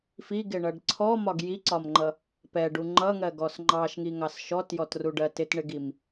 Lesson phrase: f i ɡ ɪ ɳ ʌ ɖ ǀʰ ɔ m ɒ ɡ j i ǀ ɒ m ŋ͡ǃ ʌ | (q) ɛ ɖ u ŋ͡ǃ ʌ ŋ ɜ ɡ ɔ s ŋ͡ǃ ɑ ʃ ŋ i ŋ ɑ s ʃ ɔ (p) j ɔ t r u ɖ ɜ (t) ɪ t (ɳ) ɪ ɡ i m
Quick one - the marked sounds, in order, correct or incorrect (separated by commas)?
incorrect, incorrect, correct, correct